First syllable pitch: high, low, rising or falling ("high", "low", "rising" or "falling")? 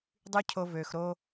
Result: high